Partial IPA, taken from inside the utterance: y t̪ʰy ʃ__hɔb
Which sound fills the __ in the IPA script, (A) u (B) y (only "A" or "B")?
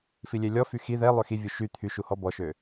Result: A